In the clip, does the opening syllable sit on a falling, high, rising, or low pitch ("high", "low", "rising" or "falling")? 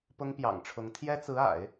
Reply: high